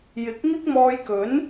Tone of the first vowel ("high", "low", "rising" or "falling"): rising